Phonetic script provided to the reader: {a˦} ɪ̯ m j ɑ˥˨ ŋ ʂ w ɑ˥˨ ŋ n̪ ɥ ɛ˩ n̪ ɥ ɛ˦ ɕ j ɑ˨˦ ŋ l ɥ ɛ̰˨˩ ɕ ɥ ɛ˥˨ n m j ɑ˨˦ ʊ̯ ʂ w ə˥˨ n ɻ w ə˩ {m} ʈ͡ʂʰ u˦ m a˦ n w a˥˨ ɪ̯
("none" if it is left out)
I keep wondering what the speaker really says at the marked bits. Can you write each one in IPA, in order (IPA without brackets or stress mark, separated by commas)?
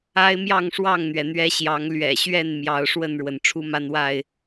a˦, n